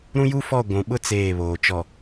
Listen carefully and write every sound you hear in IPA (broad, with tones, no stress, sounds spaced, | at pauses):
ɾ ũ˦ j u˦ f ɔ˦˨ ɡʷ ũ˨ ɓ ʊ˦ t͡s eː˦˨ β oː˨ t͡ʃ ɔ˨